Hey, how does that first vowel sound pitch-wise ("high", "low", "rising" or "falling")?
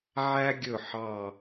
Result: high